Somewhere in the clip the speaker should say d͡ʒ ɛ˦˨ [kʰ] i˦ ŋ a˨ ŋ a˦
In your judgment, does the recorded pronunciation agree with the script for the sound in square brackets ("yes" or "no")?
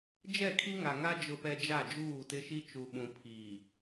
yes